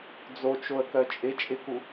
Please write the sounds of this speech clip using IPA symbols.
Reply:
d͡z o t͡ʃ o ə̯ k œ t͡ʃʼ ɪ t͡ʃʼ ɪ k u

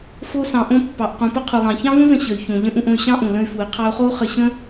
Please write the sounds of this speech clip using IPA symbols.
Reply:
f o˧ s ɑ̃˩ ʔ õ˧ pː ɑ˩ ʔ q ũ˩ p ə˥ qʰ u˩ lˠ ɑ̃˩ ç ɑ̃˥ v ũ˥ z ə̃˧ ɕ ə˩ y̯ ç õ˩ ʎ ə̃˧ ʔ ũ˧ ʔ õ˧ y̯ ɕ ɑ̃˥ ʔ ũ˩ l ə̃˧ y̯ f u˩ i̯ qʰ ɑ˧ u̯ χ o˥ u̯ χ ə˧ ɕ ə̃˥

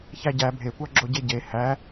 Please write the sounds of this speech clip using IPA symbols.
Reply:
ç æ ɟ æ bʱ e kʷ ɑ ɡ͡ǁ o ɟ e ɟ e h æ

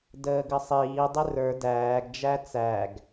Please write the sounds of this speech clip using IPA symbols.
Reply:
d əː ɡ ə sˤ iː dˤ ɪ r ə˞ d æː ɡ d͡ʒ æ t͡s æ ɡ

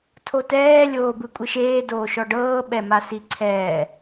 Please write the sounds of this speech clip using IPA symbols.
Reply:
tʰ o t ɛː lʲ oː b ɯ kʷʼ i ʃ eː d oː ʃ ɔ ɖ ɤː ɓ ɛ m a s i ǀʰ ɛː

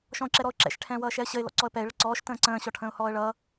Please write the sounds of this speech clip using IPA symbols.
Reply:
ʃ ɔ̃ ʊ̯ ǁ ɛ ɾ ɔ ʊ̯ ǁ ɛ̰ ʃ ʈʰ ɛ̃ː w ʌː ʃ ɛ ə̯ ɕ ə ɪ̯ l ɔ̰ ǀ ɔ ə̯ p ɛ ɪ̯ ɭ ə ǀ ɔː ʃ t ə̃ː ǀ ə̃ː ɕ ɔ ʈʰ ə̃ː ʊ̯ h ɔː ə̯ ɭ ʌː

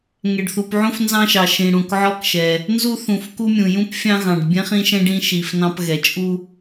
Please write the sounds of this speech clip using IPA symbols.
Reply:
ŋ ɛ˩ ɖ θ u˩ p ʕ ũ˦ f n z ɑ̃˦ ʃ ɑ˩ ʃ ĩ˩ ɽ ũ˩ k ʕ ɔ˦ k ʃ ɛ˩ | n z u˦ θ ũ˩ f k u˦ mʲ ũ˩ j ũ˦ p fʲ ɑ̃˦ ɣ ɑ̃˩ ɖ bʲ ɛ̃˦ χ ĩ˦ ʃ ɛ̃˦ ɖ ĩ˦ ʃ i˩ f n ɑ̃˦ p ɣ ɛ˩ t͡ʃʼ u˦

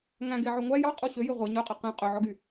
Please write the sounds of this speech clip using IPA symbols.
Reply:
ŋ æ̃ ɡ e ʕ ø ŋʷ æ j ɑ qʼ o ɕ ø j e ʁʷ ɛ ɲ œ qʼ ɛ q ẽ qʼ ø ʕ ɔ ɡ y

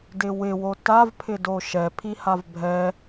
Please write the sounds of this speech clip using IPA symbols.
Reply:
d ɪ w ɪ w o t a v pʰ ɪ d o ʃ ɛ pʰ i h a v bʱ ɛ

